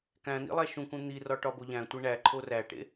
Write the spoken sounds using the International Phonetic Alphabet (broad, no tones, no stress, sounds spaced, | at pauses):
k æ̃ n̪ ḭ lˠ æ ʃ ũ k ũ n̪ i r ɒ ʈ ɒ b o ʎ æ̃ tʷ e ɳ æ ǃʰ o r æ ʈ ḛ